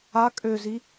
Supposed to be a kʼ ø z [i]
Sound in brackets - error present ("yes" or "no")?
no